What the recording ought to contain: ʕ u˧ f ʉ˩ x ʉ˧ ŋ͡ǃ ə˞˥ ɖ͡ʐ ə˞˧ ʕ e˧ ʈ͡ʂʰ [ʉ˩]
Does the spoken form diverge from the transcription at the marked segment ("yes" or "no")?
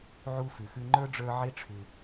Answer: no